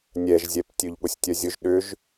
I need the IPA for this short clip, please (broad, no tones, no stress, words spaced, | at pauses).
nʲɛʒzʲɛp tʲøʎɠʊsʲtʲœzʲʊʒ ɗʏʒ